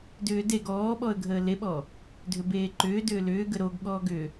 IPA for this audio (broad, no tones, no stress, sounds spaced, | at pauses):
d ʏː d e ɡ ɔː ɓ ɔ ə̯ ɡʱ əː l e ɓ ɔ | dʱ ʏ b eː ǃ ʏː d ʏː l ʏː ɡ ə ɾ o ɡ ɠ ɔː ɡ ʏ